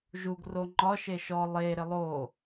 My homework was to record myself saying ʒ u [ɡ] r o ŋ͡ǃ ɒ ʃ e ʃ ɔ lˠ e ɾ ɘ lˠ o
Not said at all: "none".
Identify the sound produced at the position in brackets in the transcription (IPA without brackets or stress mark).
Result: ɡ